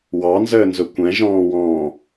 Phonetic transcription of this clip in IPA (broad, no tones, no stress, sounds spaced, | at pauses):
w ɑ n z əː n z ʊ kʷ ɛ̃ ʒ ɔ̃ː w ɔ̃ː